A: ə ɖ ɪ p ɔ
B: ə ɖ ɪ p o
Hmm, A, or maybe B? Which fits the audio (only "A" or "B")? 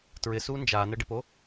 B